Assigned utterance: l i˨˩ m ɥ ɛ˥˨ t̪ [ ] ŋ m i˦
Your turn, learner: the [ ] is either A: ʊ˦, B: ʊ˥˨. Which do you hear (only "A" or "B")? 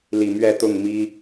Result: B